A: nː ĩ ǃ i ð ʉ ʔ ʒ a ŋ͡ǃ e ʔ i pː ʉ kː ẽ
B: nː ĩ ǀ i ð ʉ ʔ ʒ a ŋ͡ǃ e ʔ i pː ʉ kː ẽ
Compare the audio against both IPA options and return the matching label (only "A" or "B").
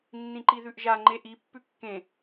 A